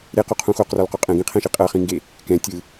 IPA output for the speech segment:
ɾ e q u qʰ ũ x o q r ɔ l q o qʼ ɛ̃ ɡ ĩ qʰ ɛ̃ ʃ i qʼ ɤ χ ĩ ŋ ɡ e | k ɛ̃ tʲ ɯ

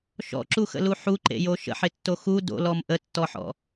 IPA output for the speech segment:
ʃ ɔ̰ ǁ u x ə̰ l u ħ u ǃ ḛ j o ʃ ə̰ ħ ɪ tː o x u d o̰ l ɔ m ʔ ə tː ɔ ħ ɔ̰

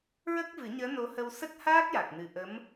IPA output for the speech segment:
ɹ ə˦˥ k̚ v ɨ˨˩˦ ɲ əː˧˥ n o˧˥ h ə˧ w s ə˦˥ k̚ h aː˦˥ k̚ j a˨˩ k̚ n ɨ˨˩ ʔ ə˧˥ m

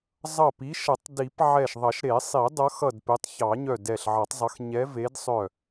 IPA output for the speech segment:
zˤ ʌ˧˩ p i˨˦ ʃ ʌ˨˩˦ tˤ d i˨˩˦ p ʕ ɛ˧˩ ʃ ðˤ ʌ˨˩˦ ʃ ɾ e˨˩˦ sˤ i˨˩˦ dˤ ʌ˨˦ x ʌ˧˩ d p e˨˦ tˤ ç ɑ˨˩˦ ɲ œ˧˩ d ɛ˧˩ ɬ ʕ ʌ˨˩˦ tˤ zˤ ʌ˨˦ x ɲ ɛ˨˦ v e˨˦ d sˤ œ˧˩

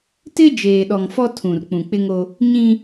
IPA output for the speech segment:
t ɪ˦ d͡ʒ eː˨ ɗ ɔ˨ ŋ f ɔ˦ tʰ ũ˨ r k͡p ũ˨ k͡p ɪ˦ ŋ o˦ | ɲ ĩ˦

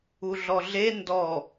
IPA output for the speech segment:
u ɮ ɔ ɮ e n d ɔ

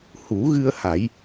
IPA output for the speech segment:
h u˨˩˦ ɣ ɨ˧ ə̯ h a˨˩˦ j

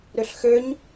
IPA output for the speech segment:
ɾ ø ɬ x ø ɲ

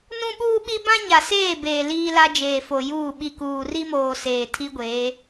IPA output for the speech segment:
n ũ˦ ɓ uː˦ ɓ i˦ b ã˦ ɲ a˨ s eː˦˨ b eː˨ l iː˦ l a˦ d͡ʒ eː˨ f o˨ j uː˦˨ ɓ i˨ k uː˨ r i˦ m oː˨ s eː˨ tʰ i˦ ɡʷ eː˨˦

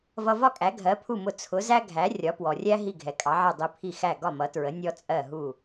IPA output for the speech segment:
v ʌ˧ v ɒ˥ kʼ æ˩˥ ɡʱ ɜ˩˥ pʰ u˥˩ m ʊ˧ t͡sʰ ʊ˩˥ z æ˥ ɡʱ æ˩˥ rʲ ɒ˩˥ p w ɔ˩ rʲ æ˥ ɦ i˥˩ ɡʱ ɛ˩ kʼ ɑ˩˥ ʕ ɛ˥˩ dˤ i˧ pʰ i˥˩ x æ˥˩ ɡ ɒ˥˩ m ʌ˩˥ t ɹ ə˩˥ nʲ ɔ˥ t͡sʼ ɜ˥˩ ɦ u˥˩

